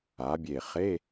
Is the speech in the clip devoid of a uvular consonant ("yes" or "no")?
no